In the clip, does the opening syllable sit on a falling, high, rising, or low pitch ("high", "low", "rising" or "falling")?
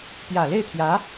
low